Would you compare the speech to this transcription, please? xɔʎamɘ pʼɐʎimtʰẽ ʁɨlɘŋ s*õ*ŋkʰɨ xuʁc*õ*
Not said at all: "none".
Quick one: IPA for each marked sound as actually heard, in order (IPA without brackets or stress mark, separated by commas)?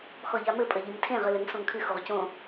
õ, õ